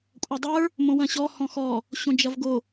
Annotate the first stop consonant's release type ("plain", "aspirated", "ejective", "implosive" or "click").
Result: ejective